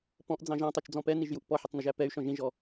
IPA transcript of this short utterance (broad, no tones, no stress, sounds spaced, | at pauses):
p ɔ̃ ʔ d͡z ɑ̃ ʒ ɑ̃ tˤ u t͡ʃ d͡z ɔ̃ p ɛ n i ʒ j u ʔ p ɔ ħ ə tˤ n ʊ ʒ æ p ɛ y̯ ʃ ɔ̃ ʒ ĩ ʒ ɔ